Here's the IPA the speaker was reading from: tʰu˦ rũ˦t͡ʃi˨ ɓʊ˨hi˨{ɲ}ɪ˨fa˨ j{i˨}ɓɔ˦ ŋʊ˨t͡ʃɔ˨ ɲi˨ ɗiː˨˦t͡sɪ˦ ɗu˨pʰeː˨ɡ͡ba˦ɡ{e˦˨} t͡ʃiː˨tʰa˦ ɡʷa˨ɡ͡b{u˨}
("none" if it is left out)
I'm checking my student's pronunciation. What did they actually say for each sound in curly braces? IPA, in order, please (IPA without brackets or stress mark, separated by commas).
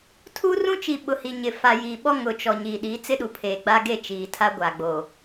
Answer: ɲ, i˨, e˦˨, o˨